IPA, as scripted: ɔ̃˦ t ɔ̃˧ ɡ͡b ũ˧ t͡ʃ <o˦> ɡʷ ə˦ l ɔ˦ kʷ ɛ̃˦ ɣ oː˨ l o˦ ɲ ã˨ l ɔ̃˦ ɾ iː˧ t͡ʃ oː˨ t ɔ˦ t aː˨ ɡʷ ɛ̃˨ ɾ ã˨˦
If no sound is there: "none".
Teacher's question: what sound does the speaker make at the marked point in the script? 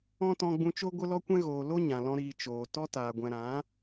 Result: o˦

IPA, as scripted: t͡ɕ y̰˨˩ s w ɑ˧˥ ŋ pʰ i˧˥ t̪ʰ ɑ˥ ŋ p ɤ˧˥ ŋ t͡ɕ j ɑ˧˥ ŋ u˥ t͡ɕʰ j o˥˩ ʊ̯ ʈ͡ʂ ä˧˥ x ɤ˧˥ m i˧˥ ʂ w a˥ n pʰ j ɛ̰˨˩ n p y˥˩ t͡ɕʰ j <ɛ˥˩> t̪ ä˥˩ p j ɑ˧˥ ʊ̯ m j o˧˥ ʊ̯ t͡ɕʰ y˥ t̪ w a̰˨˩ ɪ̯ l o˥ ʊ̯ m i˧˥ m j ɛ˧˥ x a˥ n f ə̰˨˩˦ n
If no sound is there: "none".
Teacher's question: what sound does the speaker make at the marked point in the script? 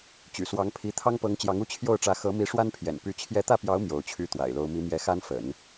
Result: ɛ˧˥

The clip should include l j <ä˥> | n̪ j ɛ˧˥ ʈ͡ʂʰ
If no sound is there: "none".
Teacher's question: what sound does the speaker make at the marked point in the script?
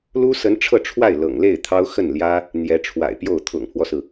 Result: ä˥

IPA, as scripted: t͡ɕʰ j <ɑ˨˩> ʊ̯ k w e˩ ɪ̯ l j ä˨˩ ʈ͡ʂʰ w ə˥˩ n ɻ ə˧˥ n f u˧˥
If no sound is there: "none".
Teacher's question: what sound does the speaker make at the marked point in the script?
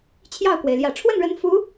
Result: ɑ˥˩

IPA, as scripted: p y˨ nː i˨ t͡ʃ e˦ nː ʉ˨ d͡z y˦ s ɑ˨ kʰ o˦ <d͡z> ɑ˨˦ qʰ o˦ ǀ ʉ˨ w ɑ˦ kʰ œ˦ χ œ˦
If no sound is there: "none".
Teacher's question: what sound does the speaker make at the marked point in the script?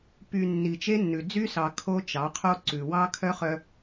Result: t͡ʃ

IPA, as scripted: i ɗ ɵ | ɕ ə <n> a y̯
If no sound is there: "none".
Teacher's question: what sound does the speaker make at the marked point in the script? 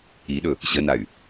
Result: n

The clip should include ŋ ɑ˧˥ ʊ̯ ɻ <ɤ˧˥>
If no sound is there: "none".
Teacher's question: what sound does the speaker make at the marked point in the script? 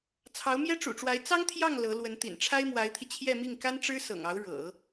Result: ɤ̰˨˩˦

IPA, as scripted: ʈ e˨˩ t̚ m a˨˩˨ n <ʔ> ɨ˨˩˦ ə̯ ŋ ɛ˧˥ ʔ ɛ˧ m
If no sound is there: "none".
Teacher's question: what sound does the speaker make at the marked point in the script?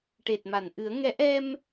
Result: ʔ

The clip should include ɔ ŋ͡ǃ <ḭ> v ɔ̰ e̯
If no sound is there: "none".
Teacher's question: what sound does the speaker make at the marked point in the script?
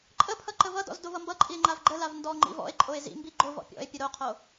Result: ḭ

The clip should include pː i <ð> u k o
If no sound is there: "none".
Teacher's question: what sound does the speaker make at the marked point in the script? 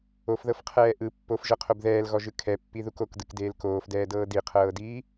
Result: ð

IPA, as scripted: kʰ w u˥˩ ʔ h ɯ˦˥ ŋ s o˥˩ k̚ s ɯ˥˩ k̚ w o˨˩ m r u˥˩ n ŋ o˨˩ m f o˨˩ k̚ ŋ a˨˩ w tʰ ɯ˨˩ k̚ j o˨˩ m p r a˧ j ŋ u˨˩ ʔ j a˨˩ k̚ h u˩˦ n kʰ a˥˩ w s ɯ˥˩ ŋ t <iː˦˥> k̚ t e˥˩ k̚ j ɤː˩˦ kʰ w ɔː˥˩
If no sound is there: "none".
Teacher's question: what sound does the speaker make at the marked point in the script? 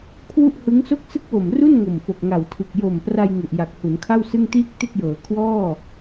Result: iː˥˩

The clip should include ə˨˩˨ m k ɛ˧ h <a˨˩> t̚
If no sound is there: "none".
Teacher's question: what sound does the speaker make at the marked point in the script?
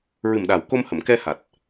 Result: a˨˩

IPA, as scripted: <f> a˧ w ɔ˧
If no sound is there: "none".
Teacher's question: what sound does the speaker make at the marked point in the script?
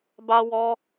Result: b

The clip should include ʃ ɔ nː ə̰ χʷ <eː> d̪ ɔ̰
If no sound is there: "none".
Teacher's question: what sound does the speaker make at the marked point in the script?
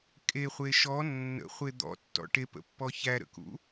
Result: e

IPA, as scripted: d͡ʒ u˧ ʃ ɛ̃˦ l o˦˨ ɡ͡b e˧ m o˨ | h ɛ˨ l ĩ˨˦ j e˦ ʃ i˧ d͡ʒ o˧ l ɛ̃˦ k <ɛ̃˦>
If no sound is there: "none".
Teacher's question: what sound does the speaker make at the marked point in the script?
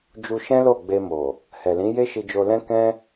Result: ɛ̃˦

